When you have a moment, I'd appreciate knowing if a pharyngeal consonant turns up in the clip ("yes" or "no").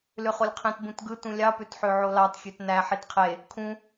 yes